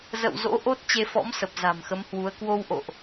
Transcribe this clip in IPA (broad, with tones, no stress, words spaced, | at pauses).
zə̰˧˨w zo̰˧˥ʔo˦˥t̚ t͡ɕe˧fɔ̰˧˥msə˨˩p̚ za̤˨˩mxə˨˦mhwu˨˦ə̯ kwo˧wʔo̰˧˨ʔ